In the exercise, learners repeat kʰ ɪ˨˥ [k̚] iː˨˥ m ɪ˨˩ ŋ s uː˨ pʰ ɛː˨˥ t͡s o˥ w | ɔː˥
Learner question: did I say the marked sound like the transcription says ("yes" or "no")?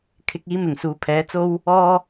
yes